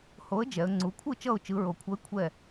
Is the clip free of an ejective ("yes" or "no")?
yes